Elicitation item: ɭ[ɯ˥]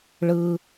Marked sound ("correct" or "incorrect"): correct